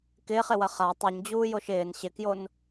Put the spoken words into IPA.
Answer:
kɪːχɪwɐ χa tˤuɲd͡ʑuːjoʃ ɪːn ɕɪkjon

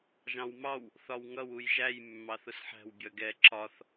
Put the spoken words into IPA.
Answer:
ʒɑ̃wmɑw | θɒwŋʌw ujʒæj mːɑθʊsħæ̤w bʲʌɡɛ ǁɒθ

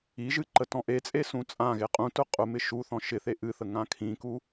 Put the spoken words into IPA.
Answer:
iʒɨ ǃətɔ̃ʔet͡sʼe sũt͡sʼãɣe qʼũtʊ qʼʊmɪ ʃuθɔ̃ ʃɪθe ʔɨθə ŋãkʰĩku

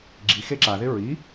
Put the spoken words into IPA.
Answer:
ɡ͡ǁixe ǁaðɪ ɹi

